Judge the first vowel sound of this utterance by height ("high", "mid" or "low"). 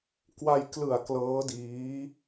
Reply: low